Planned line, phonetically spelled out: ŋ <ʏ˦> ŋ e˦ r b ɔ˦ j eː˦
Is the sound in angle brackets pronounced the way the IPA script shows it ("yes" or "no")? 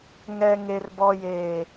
no